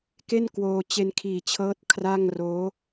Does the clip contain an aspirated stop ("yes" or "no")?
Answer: yes